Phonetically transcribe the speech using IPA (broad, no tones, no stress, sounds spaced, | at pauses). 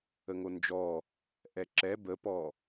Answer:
ə ŋ o n d͡ʒ ɔ | ʔ ɛ ǁ ɛ b ə p ɔ